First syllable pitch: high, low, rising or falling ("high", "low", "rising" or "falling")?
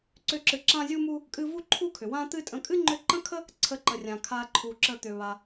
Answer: high